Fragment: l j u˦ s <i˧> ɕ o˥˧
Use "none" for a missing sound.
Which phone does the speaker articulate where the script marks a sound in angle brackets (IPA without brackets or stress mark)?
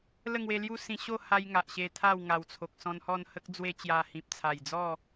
ĩ˧